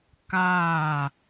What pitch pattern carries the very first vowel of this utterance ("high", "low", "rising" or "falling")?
falling